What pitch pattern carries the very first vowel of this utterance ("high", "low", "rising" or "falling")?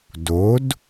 rising